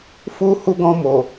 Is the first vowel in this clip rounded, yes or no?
yes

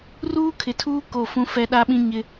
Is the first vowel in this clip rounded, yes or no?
yes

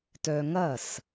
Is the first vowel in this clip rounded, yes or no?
yes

